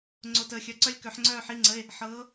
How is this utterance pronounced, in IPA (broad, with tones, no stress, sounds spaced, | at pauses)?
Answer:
ŋ͡ǀ o˨˩ t əː˨˩ xʲ œ˨˦ ǀ œ˦˥ lʲ k œ˨˦ ħ ŋ͡ǀ œː˥˧ ħ i˧˥˧ ŋ͡ǀ ə˧˥˧ e̯ | ħ ɤː˨˦